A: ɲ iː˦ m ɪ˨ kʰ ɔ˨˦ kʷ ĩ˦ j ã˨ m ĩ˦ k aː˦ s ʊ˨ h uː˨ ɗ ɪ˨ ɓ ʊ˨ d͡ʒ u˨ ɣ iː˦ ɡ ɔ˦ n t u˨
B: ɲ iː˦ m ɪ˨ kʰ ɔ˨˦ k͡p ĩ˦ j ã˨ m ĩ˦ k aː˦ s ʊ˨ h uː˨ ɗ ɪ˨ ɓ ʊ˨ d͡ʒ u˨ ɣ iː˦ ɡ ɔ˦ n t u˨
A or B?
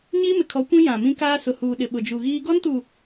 A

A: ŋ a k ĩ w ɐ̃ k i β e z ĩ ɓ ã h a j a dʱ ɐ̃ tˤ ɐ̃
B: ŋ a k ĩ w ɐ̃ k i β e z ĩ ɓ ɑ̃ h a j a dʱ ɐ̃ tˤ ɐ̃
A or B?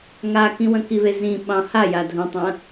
B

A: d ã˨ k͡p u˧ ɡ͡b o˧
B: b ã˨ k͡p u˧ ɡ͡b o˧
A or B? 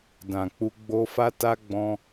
A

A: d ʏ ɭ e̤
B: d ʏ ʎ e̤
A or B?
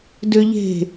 B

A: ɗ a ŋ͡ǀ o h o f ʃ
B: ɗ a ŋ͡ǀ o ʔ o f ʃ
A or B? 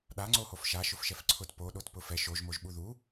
A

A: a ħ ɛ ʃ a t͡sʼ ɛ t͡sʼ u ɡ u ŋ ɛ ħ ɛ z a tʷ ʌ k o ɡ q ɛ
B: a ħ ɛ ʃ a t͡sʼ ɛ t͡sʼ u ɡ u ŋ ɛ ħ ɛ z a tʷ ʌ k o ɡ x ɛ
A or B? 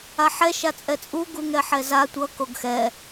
B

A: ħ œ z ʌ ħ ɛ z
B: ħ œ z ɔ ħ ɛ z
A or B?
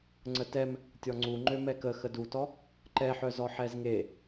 B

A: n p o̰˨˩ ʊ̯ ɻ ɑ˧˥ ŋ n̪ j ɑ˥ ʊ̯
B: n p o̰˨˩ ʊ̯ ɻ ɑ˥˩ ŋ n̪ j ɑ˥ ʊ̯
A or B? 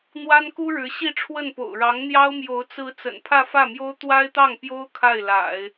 A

